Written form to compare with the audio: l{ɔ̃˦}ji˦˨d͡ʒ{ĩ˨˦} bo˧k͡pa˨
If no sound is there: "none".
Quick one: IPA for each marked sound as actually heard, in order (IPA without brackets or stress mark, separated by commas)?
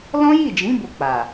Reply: ɔ̃˦, ĩ˨˦